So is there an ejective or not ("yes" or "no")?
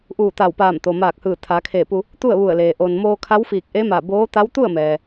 no